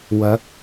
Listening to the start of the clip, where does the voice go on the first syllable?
rising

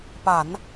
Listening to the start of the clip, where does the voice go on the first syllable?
low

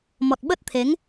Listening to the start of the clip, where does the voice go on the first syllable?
low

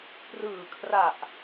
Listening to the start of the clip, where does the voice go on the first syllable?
low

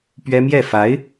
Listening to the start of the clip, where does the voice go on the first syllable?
high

